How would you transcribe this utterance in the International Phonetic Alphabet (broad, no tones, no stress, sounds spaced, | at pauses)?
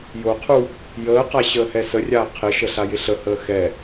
j o qʰ u | j əː q a ɕ əː h ɛ s ə rʲ aː qʰ ɪ ʃ ə ɬ a j ɪ ɬ ə h əː x ɛ